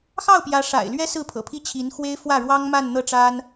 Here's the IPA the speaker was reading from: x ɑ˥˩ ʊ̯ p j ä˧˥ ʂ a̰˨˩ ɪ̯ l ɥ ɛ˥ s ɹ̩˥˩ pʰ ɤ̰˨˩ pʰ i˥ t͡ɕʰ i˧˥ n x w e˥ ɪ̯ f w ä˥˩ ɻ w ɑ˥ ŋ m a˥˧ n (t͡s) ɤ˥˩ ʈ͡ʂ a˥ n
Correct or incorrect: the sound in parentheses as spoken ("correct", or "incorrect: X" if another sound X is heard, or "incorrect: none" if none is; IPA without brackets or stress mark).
incorrect: n̪